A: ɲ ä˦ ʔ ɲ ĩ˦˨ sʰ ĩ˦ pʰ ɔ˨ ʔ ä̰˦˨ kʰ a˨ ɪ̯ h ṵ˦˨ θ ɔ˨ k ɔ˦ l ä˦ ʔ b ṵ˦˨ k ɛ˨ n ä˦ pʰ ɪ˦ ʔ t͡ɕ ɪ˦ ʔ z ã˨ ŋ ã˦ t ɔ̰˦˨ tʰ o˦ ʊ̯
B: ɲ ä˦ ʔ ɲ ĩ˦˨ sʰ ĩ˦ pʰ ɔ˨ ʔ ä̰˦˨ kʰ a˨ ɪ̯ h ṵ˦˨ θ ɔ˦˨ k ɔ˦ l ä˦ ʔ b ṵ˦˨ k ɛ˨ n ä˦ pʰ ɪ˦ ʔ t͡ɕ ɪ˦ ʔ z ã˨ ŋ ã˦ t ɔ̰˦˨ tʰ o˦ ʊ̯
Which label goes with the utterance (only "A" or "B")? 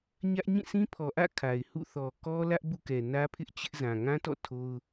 A